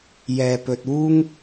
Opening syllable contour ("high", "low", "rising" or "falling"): low